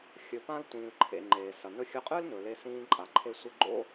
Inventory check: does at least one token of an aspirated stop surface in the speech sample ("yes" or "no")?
yes